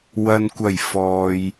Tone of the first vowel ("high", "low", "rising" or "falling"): low